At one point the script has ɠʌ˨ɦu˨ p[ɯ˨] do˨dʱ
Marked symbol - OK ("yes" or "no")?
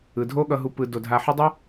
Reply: yes